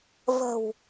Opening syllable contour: low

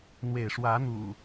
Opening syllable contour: falling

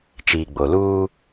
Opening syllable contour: low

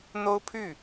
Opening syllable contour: high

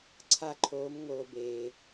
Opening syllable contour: high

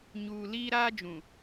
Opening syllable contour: low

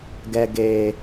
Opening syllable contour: high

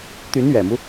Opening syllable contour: rising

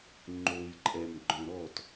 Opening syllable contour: low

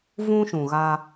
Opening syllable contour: high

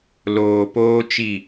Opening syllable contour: low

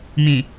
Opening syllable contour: low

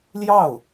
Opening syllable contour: falling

